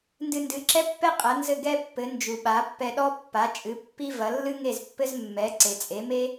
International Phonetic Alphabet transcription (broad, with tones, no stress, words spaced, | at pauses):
ndɨ˧ndɨ˩˥ǁɛ˥pːɛ˥ qʼɐ˩˥nzɘ˥˩ɡɛ˥pːɘ˩˥ nd͡ʒu˩ɓa˩˥pːɛ˧ɗɔ˥ pːa˩˥t͡ʃʼɨ˩˥ pːi˥ vɐ˩˥ lːɨ˥ŋe˥˩zpːɘ˥z mːɛ˩˥ǀe˩t͡sʼe˩˥me˥